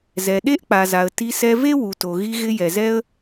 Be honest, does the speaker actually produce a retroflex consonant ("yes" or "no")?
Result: no